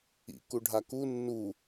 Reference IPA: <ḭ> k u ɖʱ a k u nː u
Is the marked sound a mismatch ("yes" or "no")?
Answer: no